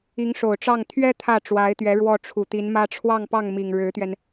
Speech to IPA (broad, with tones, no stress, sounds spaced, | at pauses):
i˧˥ ŋ ʂ o˨˩ ʊ̯ ʈ͡ʂ ɑ˥˩ ŋ t̪ʰ ɥ ɛ˥ t̪ʰ ä˥˩ ʈ͡ʂ w a˧˥ ɪ̯ t̪ ɥ ɛ˧˥ ɻ w ɔ˥˩ ʈ͡ʂʰ u˨˩ t̪ i˧˥ n m ä˥ ʈ͡ʂʰ w ɑ˥˧ ŋ p ɑ˥˩ ŋ m i˨˩ ŋ ɻ ɻ̩˧˥ t̪ ɥ ɛ˧ n